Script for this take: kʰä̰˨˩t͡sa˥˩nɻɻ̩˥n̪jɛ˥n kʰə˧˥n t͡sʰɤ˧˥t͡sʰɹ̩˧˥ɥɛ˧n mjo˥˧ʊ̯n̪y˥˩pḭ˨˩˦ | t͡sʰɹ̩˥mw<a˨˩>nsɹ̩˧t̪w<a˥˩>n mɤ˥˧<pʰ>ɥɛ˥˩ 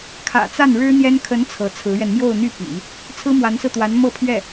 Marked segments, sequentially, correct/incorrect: incorrect: a˧˥, incorrect: a˧˥, correct

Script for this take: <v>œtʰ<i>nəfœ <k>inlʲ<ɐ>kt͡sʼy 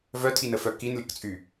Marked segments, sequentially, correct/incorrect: correct, correct, correct, correct

